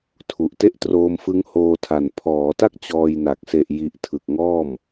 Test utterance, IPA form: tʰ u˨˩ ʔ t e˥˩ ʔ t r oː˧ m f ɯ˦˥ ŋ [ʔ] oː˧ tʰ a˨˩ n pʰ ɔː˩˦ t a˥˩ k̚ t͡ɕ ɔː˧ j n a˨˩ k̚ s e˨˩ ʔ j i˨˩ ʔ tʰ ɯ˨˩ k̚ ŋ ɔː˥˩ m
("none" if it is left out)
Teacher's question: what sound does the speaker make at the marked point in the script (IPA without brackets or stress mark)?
h